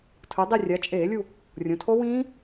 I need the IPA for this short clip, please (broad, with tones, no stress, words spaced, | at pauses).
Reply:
tʰɯ˩˧dˤi˦˨rʲa˩˧ t͡ʃʼeː˧˩˧lʲu˦˨ | rʲõ˩˧tʰo˦˥wĩː˦˥